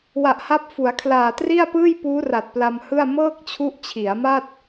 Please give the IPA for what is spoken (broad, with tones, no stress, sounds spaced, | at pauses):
w a˨˩ ʔ h a˦˥ p̚ f u˩˦ a̯ kʰ l aː˨˩ t r i˥˩ a̯ p ɯː˥˩ j p uː˦˥ r a˨˩ t̚ p l a˧ m h ɯ˥˩ a̯ m ɤː˥˩ k̚ t͡ɕʰ u˦˥ ʔ t͡ɕʰ i˩˦ a̯ m a˥˩ t̚